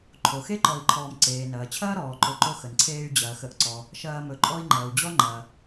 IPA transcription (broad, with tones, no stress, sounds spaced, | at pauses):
ǃʰ o˩ x e˥ ǃ ɔ˨ i̯ ǃʰ ɔː˨ m ǀ eː˩ n ɐː˩ t͡ɕʰ ɐː˦ ɾ ɔː˩ ǃ ɵ˨ ǃ o˦ x ə˩ n ǀʰ eː˦ y̯ d͡ʑ ɐː˩ x ə˨ ʔ ǀ ɔ˩ | ʃ ɐː˦ m ɵ˨ ǃʼ ɔ˥ i̯ ŋ͡ǃ ɐː˩ u̯ d͡ʑ ɔ˥ ŋ͡ǃ ɐː˩